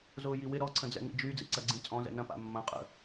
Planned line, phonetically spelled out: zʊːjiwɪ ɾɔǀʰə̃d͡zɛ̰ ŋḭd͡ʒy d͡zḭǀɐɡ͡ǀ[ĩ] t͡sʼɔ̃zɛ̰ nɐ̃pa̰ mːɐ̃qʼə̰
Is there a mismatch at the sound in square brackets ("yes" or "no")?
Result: no